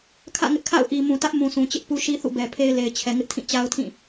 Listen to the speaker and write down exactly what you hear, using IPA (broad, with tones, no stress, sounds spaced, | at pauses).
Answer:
kʰ ä̰˦˨ ŋ ɪ˦ ʔ kʰ a̰˦˨ ʊ̯ ʔ i˨ m ũ˨ t ä˦ ʔ m ũ˨ s ũ˨ t͡ɕ ɪ˦ ʔ p u˦ ʃ i˦ θ ṵ˦˨ b ɛ˨ pʰ e˦ ɪ̯ l e˨ ɪ̯ t͡ɕʰ ɛ˨ ŋ ɪ˦ ʔ tʰ ĩ˦˨ t͡ɕ a˦ ʊ̯ tʰ ĩ˦˨